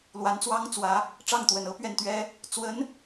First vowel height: low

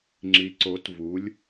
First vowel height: high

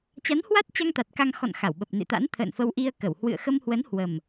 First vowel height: low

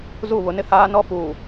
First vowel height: high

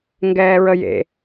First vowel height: mid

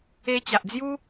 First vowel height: mid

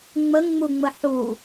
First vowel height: mid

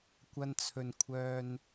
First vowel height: low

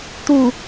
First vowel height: high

